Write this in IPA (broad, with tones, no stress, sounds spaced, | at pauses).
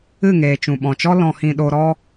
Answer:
ɨ˦˨ ŋ eː˨ t͡ʃ ũ˨ ɓ ɔ̃˨ t͡ʃ ɔ˦ l ɔ̃˨ h ĩ˨ ɗ o˧ ɾ ɔ˦